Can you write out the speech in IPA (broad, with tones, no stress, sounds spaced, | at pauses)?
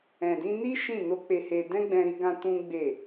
ɛ̃˨ d ĩ˧ n i˦ ʃ ĩ˦˨ n o˧ k͡p e˧ h e˧ d ɛ̃˦ ɡ͡b ɛ̃˧ ɾ i˧ ɡ ã˧ t ũ˦ ɡ͡b e˦˨